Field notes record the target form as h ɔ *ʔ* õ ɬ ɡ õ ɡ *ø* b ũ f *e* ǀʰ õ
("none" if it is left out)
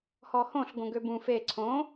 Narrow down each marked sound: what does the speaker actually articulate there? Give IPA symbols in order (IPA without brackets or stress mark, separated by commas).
h, ø, e